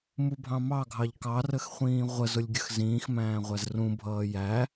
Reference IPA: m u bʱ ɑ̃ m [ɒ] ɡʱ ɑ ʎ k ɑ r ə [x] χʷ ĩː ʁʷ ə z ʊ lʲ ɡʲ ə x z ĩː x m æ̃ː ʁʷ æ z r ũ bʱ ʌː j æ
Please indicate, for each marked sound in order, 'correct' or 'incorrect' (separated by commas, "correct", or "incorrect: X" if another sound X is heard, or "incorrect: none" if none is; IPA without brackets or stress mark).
incorrect: ɑ, correct